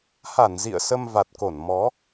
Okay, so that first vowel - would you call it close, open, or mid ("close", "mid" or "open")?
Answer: open